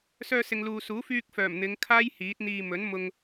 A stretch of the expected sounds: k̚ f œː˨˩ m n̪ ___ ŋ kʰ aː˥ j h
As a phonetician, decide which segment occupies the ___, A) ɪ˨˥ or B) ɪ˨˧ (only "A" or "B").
B